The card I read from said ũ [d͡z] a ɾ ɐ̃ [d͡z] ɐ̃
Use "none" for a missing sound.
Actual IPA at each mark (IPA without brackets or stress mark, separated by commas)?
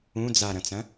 d͡z, t͡s